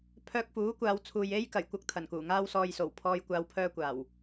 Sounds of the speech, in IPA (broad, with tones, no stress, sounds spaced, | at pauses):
pʰ œː˧ k̚ f uː˨˥ kʷ aː˨˧ w t͡sʰ uː˨ j e˥ j k ɐ˨˩ j kʷ ɐ˧ k̚ t̪ʰ ɐ˨˩ n k uː˨˩ ŋ aː˥ w s ɔː˧ j s o˨˩ w pʰ ɔː˧ j kʷ aː˧ w pʰ œː˧ kʷ aː˨˩ w